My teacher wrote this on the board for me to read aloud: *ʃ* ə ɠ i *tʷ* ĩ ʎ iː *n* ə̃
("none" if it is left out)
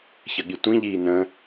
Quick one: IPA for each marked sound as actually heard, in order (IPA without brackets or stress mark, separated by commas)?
ç, tʷ, n